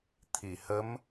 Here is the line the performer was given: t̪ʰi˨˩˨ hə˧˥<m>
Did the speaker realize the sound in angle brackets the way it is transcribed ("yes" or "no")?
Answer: yes